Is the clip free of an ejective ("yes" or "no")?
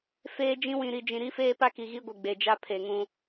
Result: yes